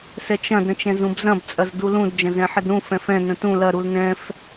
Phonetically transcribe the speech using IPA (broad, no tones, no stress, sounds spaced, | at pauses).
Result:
s ɛ t͡ʃ ɐ̃ d ɾ ə̃ t͡ʃ ɛ̃ z ũ b z ɐ̃ b t͡sʼ ɐ z d u l ũ d d͡ʒ ɐ̃ z ɛ̃ ħ ə d ɾ ũ f ɛ̃ f ɛ̃ n ə̃ t ũ l ɐ ɾ u l n ɛ̃ f